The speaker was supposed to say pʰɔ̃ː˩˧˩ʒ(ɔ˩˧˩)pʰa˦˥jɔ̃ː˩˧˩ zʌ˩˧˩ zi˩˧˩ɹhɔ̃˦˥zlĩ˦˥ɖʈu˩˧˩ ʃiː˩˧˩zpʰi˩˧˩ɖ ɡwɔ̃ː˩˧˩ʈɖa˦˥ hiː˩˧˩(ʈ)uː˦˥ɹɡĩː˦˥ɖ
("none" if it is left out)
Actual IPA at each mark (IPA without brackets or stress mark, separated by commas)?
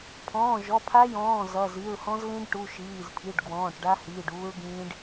ɔ˩˧˩, ɖ